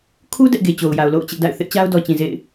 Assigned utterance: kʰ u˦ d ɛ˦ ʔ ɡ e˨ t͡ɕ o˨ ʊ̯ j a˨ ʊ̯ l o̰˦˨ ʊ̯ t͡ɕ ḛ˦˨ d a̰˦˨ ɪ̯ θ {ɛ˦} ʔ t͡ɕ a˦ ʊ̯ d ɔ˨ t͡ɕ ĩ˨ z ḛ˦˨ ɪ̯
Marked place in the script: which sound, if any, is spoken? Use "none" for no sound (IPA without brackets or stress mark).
ɪ˦